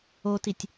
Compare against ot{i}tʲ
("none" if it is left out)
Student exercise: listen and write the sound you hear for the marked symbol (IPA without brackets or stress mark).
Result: i